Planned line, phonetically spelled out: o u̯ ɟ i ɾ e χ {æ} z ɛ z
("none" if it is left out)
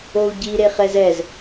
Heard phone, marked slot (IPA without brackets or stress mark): ɛ